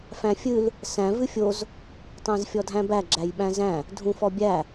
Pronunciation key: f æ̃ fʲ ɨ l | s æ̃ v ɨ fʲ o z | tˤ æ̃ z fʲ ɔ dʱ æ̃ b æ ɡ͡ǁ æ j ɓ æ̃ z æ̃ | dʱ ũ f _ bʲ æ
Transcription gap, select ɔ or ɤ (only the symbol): ɔ